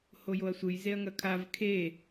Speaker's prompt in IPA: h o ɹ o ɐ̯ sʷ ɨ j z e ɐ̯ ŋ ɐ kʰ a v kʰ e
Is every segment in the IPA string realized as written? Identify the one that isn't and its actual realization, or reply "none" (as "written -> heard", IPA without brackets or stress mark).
ɹ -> j